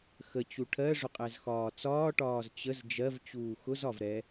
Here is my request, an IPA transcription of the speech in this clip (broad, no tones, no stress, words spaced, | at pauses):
xət͡ɕu ʈʰɜʐʊqʼæzxɒː t͡sɒːʈɒːz t͡ɕəz d͡ʒɜvt͡ɕuː xʊzɒvɾɛ